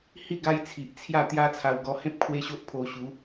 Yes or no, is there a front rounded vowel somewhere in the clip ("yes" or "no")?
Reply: no